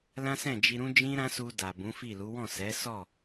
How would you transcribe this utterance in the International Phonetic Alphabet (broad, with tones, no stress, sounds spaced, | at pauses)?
l ã˦ s ɛ̃˦˨ d͡ʒ i˧ ɾ ũ˦ d͡ʒ ĩ˦ ɾ ã˦ s u˧ d a˨ b ũ˨˦ f i˦˨ l u˨˦ w ɔ̃˦˨ s ɛ˨˦ s ɔ˦˨